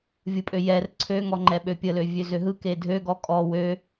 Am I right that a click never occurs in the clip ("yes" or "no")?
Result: no